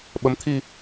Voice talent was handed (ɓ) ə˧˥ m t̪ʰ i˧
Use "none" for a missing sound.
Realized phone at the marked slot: ɓ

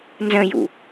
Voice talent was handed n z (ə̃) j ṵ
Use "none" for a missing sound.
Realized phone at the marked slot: ə̃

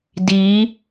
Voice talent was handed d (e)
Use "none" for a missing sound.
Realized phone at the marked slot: i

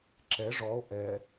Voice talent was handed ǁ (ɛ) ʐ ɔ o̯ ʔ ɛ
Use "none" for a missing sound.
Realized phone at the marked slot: ɛ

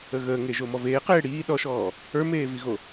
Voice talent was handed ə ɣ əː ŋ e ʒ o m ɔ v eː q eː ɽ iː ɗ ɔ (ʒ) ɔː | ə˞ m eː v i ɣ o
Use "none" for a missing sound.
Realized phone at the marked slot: ʃ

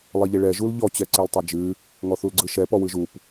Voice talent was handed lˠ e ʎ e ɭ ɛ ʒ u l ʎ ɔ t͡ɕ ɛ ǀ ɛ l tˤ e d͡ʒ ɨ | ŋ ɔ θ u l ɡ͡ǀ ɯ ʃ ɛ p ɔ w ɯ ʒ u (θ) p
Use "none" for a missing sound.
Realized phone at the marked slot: none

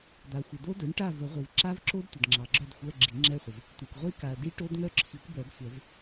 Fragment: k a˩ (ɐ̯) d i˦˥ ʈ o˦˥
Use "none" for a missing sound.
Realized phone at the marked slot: ɐ̯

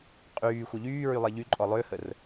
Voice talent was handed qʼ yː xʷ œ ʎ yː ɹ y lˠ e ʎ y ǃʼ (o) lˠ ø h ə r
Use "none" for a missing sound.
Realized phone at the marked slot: ɔ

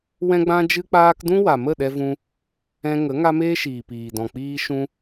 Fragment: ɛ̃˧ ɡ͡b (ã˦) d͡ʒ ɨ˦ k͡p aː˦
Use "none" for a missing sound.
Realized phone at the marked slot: ã˦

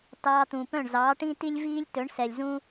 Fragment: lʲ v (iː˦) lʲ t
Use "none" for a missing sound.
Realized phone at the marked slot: iː˦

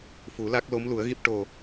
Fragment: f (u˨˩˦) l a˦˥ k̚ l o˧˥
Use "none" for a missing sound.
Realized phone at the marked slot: u˨˩˦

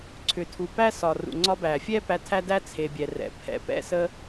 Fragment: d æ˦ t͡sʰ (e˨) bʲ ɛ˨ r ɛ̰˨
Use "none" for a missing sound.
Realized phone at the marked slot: e˨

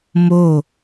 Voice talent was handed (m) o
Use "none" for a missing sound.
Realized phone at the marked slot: m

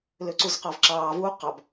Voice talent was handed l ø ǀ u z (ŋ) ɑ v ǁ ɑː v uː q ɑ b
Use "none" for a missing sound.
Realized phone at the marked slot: q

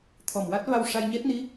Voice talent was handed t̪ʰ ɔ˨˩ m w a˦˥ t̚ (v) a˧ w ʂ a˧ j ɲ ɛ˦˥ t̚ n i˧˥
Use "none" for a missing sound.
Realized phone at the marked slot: v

